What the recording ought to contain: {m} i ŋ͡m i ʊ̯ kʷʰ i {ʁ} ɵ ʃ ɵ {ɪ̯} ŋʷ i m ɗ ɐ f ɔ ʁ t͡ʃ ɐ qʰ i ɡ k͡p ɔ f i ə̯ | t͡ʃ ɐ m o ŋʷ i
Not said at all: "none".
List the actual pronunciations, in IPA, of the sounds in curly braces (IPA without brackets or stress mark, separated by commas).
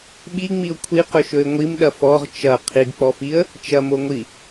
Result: ɓ, q, ɪ̯